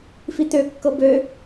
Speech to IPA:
f i t̪ ø kː ɤ b ø

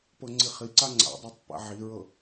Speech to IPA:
p ɤ ŋ͡ǀ i χ i ǀ a ŋ͡ǀ a̰ dˤ a tˤ p a̰ ʕ i ɹ ɤ

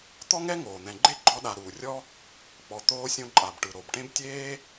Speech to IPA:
t̪ ɔ˥ ŋ ɛ˥ ŋ oː˩ n̪ ɛ̃˨ ɡ͡ǃ e˥ ɡ͡ǃ ɔ˦ ɗ a˨ ɾ uː˩ rʲ ɔ˥ | k͡p ɔ˨ t̪ oː˦ sʲ õ˦ ǃʼ a˨ b ʈ ɯ˨ ɾ o˩ b ʈ ẽ˥ b tʲ eː˥

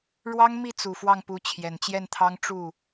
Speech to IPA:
ɻ w ɑ˥ ŋ m i˥˩ t͡s u˨˩ f w ɑ˥˩ ŋ p u˧˥ t͡ɕʰ j ɛ˨˩ n t͡ɕ j ɛ˥˩ n t̪ʰ ɑ˥ ŋ ʈ͡ʂ u˥˩

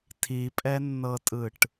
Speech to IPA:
tʰ i pʼ ɛ nː ɤ tʼ ɯ ʈ

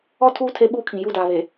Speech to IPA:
ɔ˦˨ tʰ uː˦ tʰ e˦ ɓ uː˦ kʰ ĩ˨ j u˦˨ d aː˨ β e˨

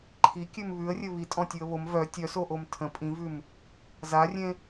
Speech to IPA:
ǃʰ i kʲ ʉ m β ʉ ə̯ rʲ ɘ β i tʼ ɔ̃ tʲ ʉ ə̯ β o m v œ tʲ œ s o ʔ o m tʰ ə̃ pʼ ĩ v ʉ m | z a rʲ ẽ

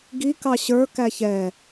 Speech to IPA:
ɡ i k ɑ ɕ ə˞ k æ ç ɛ

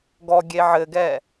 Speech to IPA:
ɡ ɔ ɡʲ e ʕ ɘ ɡ ɛ

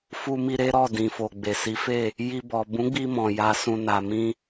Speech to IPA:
f u˧ m i˧ ɾ e˦ ɾ ɔ˦˨ d ĩ˨ f o˨ ɡ͡b e˨ s i˨˦ f e˦˨ | j i˧ b ɔ˨ b ũ˨˦ ɡ͡b i˧ m ɔ̃˨ j a˧ s ũ˧ n a˨ m ĩ˧

